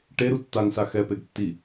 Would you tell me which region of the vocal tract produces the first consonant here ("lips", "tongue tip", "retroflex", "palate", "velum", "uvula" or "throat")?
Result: retroflex